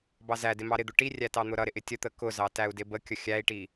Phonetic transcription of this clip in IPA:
b ɑ z æ d ɪ m ɑ ɾ ɪ d̪ ʊ ʈ i rʲ æ t ɑ n̪ ʊ ɾ ʌ ɾ ɪ ʔ ɪ tʲ ə t̪ ə k ʊ z ɑ t æ u̯ d ɪ b ə kʲ ə xʲ æ i̯ ʈ i

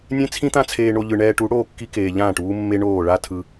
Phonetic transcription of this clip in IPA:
nʲ ẽ˦ t͡sʰ ĩ˦ t̪ ã˦ t͡sʰ eː˧ ɳ o˧ ʎ ɯ˧ ɳ ɛː˧ ʈ u˨˦ ɽ oː˦˨ kː i˧ k eː˨ ʎ ãː˦˨ ʈ uː˦ mː e˦ ɳ oː˦˨ ɭ a˦ tʰ ɯ˧

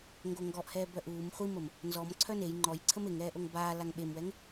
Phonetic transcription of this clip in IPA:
ŋ ɡ o ŋ ɡ ɔ ʔ h ɛː b œ ʔ uː m χʷ i m ə m | n z ɔ m ǀʰ œ n e j ŋ͡ǃ ɔ j ǀʰ ə m e ŋ ɛː ʔ o ŋ b aː l a ŋ ɓ e m w ɛ ŋ

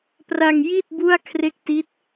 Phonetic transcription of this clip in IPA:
p r a˧ ŋ j i˥˩ t̚ b u˥˩ a̯ kʰ r e˥˩ k̚ t i˦˥ t̚

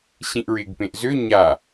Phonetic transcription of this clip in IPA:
ɕ ĩ ʔ ɹ ɪː ɡ p ẽ ʔ z ø ɲ a

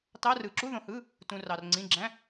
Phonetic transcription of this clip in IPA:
t ɑ˧˥˧ r ɯ˨ ǁ u˧˥˧ ð õ˨ h ɯ˧˥˧ | t ũ˨ r ɑ˨ r ŋ͡ǀ ĩ˧˥˧ ɡ͡ǁ æ̃˧˥˧

